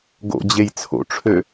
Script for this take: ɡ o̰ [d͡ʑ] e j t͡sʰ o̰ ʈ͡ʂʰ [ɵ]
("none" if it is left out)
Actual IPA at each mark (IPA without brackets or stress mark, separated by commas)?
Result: d͡ʑ, ø